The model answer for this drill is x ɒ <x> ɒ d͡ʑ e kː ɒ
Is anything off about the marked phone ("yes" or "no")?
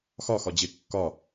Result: no